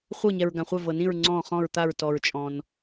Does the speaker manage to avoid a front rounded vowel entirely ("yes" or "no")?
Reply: yes